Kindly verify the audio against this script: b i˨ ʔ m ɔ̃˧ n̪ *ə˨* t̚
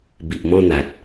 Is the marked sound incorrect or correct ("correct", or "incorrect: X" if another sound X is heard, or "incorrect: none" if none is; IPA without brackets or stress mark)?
incorrect: a˨